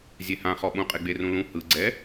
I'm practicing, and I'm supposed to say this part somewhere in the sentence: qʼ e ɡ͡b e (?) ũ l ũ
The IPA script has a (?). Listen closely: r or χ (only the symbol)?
r